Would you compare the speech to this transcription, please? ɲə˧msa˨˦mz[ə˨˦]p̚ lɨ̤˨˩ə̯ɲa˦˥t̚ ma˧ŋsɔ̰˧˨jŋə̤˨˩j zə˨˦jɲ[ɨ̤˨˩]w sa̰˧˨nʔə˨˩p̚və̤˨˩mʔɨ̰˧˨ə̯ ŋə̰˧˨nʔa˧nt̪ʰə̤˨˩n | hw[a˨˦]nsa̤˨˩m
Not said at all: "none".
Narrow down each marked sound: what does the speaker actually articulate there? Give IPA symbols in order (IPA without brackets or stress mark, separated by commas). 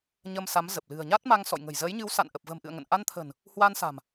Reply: ə˨˩, ɨ˨˦, a˧